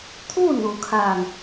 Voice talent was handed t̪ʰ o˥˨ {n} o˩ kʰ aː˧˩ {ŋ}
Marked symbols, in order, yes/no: yes, yes

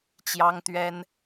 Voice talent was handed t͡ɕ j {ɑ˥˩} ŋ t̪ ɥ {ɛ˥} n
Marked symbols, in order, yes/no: no, yes

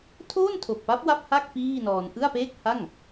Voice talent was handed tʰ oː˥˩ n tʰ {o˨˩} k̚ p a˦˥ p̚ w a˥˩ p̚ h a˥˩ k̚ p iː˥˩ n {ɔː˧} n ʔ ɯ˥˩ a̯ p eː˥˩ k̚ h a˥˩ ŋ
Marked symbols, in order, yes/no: yes, yes

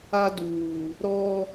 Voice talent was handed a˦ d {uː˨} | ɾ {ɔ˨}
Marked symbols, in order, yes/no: yes, no

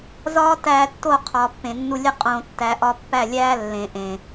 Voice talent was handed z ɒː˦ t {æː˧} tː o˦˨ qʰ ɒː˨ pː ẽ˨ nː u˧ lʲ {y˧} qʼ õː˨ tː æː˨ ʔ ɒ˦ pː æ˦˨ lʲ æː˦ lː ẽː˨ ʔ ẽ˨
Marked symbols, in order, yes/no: yes, no

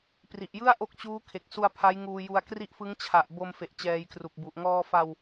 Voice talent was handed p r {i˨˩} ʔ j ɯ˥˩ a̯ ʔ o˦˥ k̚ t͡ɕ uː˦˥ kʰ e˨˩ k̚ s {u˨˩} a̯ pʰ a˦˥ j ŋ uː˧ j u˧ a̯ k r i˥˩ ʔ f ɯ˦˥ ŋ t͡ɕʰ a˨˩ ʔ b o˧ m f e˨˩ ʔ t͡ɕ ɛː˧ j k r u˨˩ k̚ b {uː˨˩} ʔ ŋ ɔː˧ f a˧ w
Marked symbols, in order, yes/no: yes, no, no

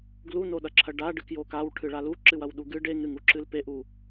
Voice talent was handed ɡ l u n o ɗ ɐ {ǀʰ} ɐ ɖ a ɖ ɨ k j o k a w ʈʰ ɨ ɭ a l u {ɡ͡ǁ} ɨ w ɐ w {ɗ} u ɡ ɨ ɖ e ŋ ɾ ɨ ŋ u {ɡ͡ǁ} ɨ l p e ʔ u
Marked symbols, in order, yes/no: no, no, yes, no

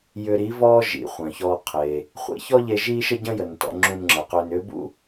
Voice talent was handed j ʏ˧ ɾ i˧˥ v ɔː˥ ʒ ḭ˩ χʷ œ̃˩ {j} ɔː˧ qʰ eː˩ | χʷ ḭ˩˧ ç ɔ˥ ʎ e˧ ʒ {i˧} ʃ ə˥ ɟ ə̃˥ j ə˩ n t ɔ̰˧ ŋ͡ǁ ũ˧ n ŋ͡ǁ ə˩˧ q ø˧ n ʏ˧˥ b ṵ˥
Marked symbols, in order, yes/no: no, no

